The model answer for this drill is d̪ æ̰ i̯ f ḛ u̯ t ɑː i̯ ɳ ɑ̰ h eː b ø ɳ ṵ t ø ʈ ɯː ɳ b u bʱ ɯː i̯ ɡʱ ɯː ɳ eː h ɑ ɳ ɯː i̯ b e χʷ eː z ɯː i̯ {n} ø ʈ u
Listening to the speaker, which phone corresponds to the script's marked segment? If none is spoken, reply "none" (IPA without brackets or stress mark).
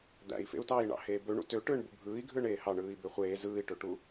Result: ʈ